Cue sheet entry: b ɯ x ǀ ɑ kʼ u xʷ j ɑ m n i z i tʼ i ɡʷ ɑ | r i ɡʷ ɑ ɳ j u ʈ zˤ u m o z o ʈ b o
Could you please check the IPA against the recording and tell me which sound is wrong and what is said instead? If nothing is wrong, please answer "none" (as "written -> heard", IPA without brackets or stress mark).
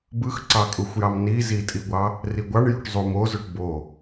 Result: none